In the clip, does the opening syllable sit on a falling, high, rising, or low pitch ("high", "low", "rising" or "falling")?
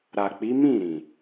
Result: low